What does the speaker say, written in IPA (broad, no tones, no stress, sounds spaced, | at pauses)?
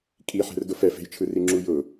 kʼ i ħ ɛ̤ r d ʊ f ɛ f e̤ j t͡ʃʰ ɯ r i ŋ͡ǁ u j ʊ